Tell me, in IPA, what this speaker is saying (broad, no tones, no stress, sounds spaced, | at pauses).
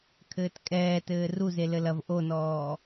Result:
kʰ ɘː t kʼ ɛː t ɘː r u z e l ɘ l ɐ v ʔ o n ɔː